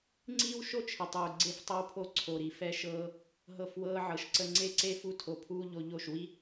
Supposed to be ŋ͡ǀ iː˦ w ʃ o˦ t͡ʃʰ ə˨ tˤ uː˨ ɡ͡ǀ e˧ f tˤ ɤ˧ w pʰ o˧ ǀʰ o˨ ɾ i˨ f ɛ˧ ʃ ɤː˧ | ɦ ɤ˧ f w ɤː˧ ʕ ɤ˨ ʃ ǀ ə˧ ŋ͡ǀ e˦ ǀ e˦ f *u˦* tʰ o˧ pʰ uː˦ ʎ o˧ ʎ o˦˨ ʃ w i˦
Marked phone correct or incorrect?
correct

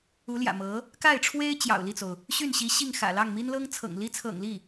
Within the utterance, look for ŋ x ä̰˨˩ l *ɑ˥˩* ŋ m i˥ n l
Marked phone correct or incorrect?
correct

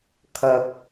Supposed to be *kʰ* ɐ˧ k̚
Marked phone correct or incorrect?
correct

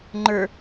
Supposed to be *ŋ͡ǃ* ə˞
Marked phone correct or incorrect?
correct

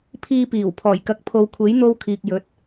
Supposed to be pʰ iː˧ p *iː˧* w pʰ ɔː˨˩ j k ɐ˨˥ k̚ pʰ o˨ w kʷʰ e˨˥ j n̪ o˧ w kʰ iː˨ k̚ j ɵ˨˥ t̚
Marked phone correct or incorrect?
incorrect: iː˨˩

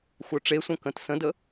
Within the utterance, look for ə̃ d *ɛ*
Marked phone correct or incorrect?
incorrect: ə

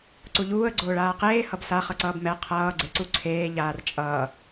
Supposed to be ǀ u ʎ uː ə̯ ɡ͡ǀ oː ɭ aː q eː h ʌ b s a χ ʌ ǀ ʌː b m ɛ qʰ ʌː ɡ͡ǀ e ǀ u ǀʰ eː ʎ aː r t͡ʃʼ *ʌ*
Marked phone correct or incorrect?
incorrect: ʌː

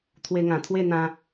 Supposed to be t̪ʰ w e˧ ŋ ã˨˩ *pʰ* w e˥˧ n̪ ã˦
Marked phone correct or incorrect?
incorrect: t̪ʰ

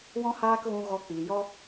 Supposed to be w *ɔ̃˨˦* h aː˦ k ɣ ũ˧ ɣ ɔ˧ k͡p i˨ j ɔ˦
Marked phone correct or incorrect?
incorrect: ɔ̃˦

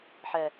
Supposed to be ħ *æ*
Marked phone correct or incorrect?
incorrect: ɛ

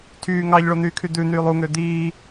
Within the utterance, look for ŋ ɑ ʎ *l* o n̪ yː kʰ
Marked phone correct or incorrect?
incorrect: ɭ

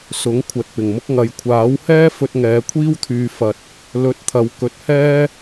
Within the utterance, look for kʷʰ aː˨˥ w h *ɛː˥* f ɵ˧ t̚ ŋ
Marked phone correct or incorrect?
correct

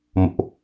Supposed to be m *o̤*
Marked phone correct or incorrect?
incorrect: o̰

